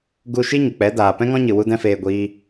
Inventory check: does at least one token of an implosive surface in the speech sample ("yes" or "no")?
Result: no